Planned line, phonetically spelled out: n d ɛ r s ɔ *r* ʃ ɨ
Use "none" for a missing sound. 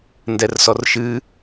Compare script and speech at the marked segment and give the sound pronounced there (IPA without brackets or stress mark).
r